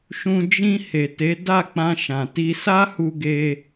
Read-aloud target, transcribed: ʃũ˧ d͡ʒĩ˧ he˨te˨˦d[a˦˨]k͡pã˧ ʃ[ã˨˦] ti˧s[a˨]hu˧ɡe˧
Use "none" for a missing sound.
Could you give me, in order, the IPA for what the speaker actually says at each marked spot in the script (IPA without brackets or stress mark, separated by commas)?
a˦˨, ã˨, a˦